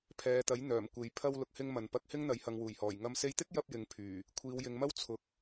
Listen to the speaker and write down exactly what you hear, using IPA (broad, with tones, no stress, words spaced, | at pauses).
pʰɛː˨t̪ɐ˨˥jn̪œː˨˩mkʷe˨˧j pʰɐ˧w lʊ˨k̚hɪ˧ŋ mɐ˨n pɐ˧k̚hɪ˥ŋn̪ɐ˨˧j hɐ˨ŋ wuː˨˩jhɔː˨˩j ŋɐ˧m se˧jt̪ɪ˥k̚jɐ˧p̚ jɪ˨ŋpʰyː˨˩ | kʷʰiː˨˧wjɪ˨˧ŋmɐ˥w t͡sʰʊ˨k̚